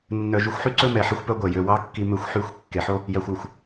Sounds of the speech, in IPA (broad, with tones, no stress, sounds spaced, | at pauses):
nː œ˨ ʒ y˨ xʷ ħ y˦ ǀ ɵ˦ m ɛ˨ ħ e˦ xʷ p œ˦ ɡʷ ɛ˨ j ø˨ w ɑ˦ kː i˦ m ø˦ xʷ ħ y˦˨ xʷ kː e˨ ħ o˦ | j æ˨ xʷ ʉ˨ xʷ